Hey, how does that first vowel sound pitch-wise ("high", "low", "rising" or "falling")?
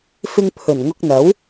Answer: high